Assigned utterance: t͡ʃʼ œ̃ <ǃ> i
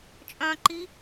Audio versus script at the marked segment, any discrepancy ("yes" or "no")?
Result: no